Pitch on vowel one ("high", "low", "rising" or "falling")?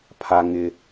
high